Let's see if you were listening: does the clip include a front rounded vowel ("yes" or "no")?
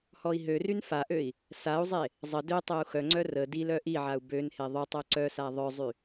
yes